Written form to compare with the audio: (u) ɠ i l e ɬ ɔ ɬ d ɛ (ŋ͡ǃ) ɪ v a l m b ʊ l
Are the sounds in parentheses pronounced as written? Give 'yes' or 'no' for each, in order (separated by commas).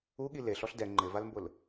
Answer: yes, yes